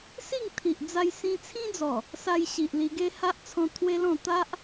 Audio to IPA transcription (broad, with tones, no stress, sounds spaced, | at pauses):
s i˥˧ ŋ t̪ʰ i˨ ʔ d͡z a˧ j s ĩ˧ t͡sʰ ĩ˦ d͡z ɔ˨˩ | s a˧ j ɕ i˨ ʔ l i˧ ɡ e˦ h a˦ ʔ t͡sʰ ɔ̃˧ t̪ʰ w e˦ l ɔ̃˥˧ t̪ a˦ ʔ